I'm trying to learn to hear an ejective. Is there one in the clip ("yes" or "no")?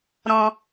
no